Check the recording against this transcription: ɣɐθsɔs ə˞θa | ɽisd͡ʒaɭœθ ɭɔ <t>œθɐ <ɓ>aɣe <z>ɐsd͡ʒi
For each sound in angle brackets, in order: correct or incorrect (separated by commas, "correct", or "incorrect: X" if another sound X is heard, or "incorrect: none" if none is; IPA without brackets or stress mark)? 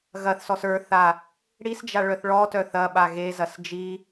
correct, correct, correct